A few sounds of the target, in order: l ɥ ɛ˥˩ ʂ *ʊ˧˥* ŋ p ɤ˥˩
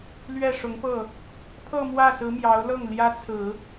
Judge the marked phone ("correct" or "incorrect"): correct